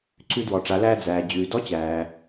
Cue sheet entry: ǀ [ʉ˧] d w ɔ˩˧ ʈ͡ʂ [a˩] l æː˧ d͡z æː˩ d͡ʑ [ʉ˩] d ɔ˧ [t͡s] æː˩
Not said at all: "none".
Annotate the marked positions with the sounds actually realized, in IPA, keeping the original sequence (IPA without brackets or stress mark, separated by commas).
ʉ˧, a˩˧, ʉː˩, t͡ɕ